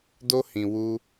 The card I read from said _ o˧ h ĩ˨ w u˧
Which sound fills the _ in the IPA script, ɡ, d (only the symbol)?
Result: d